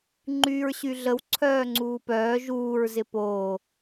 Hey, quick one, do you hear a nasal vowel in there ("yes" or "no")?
no